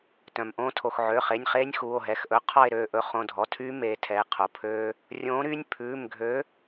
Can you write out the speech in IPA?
tœ̃˩mʔõː˦tʰo˩x ʕø˩˧˩χe˩˧˩nʲχeː˦nʲ xuː˩˧˩o̯ɦɛ˩˧˩xʔɵ˨˥ qʰɔ˦˨e̯ɾøː˦˨ʔɵ˨˥ χõ˩˧˩dʱɔ˩˧˩tʰyː˦ meː˨˥tʰɛ˩˧˩e̯ qʰo˩ pʰøː˦ | rʲõː˨˥ɾyː˦nʲ pʰʉː˩˧˩mɡʱø˨˥

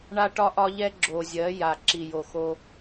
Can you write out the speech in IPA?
ɳa˦ʈɒ˦ʔɒ˦ʎɛ˦ ɡ͡ǁo˨zʲɜ˨˦ ja˨ǁi˨jo˨xo˦

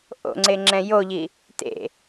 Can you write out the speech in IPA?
ʔo̰ŋ͡ǀe ŋ͡ǁɛ̃joʎi | tḛ

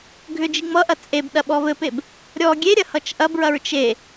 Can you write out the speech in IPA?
ɡʱʏd͡ʒi ŋ͡mʌʔɐ t͡sʼeb ɗɐɓɔvɘpeb | ɾʲɔ ɡʲeɾʲɐ hʌt͡ʃʔɐbɹɐɹ t͡ʃe

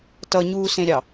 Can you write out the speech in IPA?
tʌɲuːsẽɾʲɑ

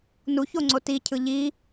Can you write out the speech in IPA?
nuçoŋ͡ǀo ticʰɯ ʎi

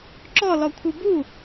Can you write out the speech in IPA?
ǁɔlɔ kʷʰɯbu

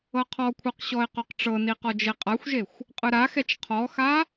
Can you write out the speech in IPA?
ɤqʰɔkʷʰɤq ɕɔɪ̯qoqʈ͡ʂɤni qɔd͡ʒeqʼaxʷʒexʷ | qʼɯɾaxɛt͡ʃ qʰɔxa

